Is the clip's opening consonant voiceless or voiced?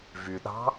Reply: voiced